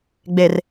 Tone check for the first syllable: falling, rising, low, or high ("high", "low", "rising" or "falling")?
low